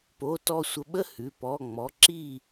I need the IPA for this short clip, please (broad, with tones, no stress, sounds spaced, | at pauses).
p o˧˥˧ t ɔ˥˧ sʷ ə˧˥˧ ɓ ə˥˧ h ʉ˩˧˩ p ɔ˩˧˩ ŋ͡m ɔ˩˧˩ ǁ i˥˧